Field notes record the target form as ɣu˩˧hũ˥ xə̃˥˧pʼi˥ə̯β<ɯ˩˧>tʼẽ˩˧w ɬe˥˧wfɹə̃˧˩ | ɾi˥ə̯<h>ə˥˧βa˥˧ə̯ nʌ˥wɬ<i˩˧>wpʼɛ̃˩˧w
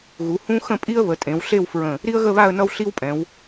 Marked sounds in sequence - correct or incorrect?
incorrect, incorrect, incorrect

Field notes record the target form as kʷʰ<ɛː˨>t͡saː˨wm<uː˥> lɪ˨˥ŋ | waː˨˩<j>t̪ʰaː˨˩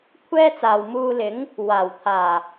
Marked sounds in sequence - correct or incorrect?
incorrect, incorrect, incorrect

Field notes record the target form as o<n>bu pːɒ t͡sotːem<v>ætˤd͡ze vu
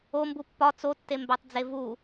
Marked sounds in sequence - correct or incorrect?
incorrect, incorrect

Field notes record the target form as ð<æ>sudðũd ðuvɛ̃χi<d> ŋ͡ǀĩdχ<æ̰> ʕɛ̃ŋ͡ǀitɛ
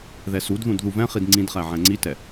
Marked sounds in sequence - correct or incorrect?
incorrect, correct, incorrect

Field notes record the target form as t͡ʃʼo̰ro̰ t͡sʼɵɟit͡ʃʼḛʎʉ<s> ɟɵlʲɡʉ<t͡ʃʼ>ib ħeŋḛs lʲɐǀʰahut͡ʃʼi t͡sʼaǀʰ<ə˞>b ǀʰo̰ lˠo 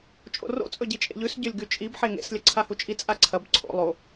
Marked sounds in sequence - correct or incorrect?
correct, correct, incorrect

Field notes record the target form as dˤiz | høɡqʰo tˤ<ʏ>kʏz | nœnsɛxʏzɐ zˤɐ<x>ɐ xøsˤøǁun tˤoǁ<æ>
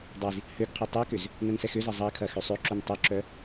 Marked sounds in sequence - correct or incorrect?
incorrect, incorrect, incorrect

